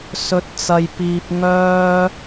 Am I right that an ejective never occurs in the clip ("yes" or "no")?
yes